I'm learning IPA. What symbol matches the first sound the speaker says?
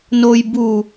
n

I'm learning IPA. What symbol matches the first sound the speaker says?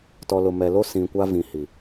t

